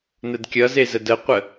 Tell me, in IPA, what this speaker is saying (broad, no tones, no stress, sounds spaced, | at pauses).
n ə d kʲ ʌ z e z ə d ə qʷ ə